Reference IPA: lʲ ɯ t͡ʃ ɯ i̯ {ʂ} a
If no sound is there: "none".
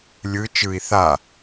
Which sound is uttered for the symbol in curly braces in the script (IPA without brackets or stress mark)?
θ